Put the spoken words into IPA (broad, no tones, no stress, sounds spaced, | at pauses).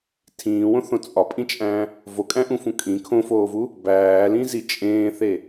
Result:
tʰ ĩː w õ θ õ t͡sʼ ɒ pʼ ĩ t͡ʃʼ æ̃ | v o kʼ æ̃ ʔ ũ f ũ kʼ ĩ kʰ õ f oː v u | b æː l ĩ z i t͡ʃʼ ẽː θ e